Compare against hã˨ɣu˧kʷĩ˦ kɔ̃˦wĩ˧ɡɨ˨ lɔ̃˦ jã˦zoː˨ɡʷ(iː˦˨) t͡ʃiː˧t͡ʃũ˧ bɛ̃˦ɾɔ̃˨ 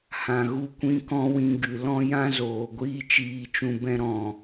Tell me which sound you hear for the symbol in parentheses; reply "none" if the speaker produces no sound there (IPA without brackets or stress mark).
iː˦